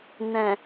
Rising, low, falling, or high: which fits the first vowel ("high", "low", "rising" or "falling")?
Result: low